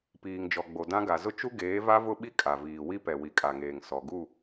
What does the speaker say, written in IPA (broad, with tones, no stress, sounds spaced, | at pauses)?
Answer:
p iː˨ ŋ d͡ʒ ɔ˨ ɡ͡b o˨ d ã˦ ɡ a˨ z ʊ˦ t͡ʃ u˦ ɡ eː˨˦ v a˦ v ʊ˦ ɓ i˦ kʼ a˨ v iː˨ w i˦ p ɛ˨ w i˨ kʼ a˨ ŋ eː˨ ŋ s ɔ˨ ɡ u˦˨